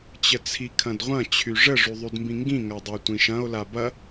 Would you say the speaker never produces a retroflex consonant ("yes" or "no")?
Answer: no